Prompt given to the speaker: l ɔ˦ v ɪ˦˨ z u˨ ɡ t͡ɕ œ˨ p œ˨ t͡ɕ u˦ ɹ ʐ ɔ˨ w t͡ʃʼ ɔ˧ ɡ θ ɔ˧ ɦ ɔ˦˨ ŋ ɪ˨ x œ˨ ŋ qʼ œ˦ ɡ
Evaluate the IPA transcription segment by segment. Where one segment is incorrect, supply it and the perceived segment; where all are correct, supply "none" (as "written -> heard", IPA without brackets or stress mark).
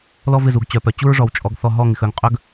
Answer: none